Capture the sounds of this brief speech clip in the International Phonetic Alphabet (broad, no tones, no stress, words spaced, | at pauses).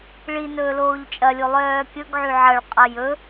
ɭi nɵːloːʎt͡ʃʼɐlʲo lˠœːkʲɵɡʕy ʕɐɭqʼɐ jɵ